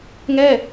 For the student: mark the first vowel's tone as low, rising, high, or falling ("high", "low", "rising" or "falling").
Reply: falling